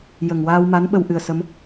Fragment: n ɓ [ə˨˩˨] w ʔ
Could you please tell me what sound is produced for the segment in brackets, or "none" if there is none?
ə˧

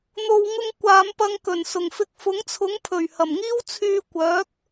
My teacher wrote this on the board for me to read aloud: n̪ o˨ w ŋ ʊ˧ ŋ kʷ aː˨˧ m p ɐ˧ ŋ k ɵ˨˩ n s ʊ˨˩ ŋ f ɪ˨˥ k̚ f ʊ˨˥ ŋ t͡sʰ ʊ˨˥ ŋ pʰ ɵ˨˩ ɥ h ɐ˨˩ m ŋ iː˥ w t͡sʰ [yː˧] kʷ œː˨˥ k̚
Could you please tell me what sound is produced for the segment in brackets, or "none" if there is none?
yː˧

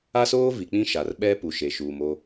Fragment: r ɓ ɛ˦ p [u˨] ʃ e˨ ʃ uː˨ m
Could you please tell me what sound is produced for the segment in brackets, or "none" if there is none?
u˨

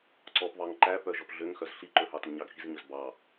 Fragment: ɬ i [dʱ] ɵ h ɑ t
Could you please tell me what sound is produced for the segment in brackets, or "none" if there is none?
ǃ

